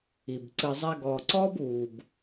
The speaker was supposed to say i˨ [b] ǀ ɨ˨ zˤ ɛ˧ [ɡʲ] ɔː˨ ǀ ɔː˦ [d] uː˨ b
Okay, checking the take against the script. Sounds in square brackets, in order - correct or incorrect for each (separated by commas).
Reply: correct, incorrect, incorrect